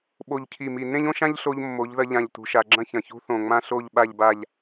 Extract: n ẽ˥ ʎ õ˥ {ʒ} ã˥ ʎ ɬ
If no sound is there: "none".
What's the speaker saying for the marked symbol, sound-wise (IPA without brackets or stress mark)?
ʃ